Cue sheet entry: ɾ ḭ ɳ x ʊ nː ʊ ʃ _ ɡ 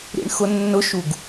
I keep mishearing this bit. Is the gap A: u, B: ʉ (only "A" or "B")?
A